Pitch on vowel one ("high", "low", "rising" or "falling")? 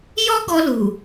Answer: high